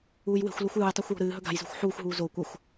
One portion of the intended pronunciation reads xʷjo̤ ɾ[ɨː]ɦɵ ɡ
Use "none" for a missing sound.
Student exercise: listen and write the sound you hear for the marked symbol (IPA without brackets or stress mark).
ɨː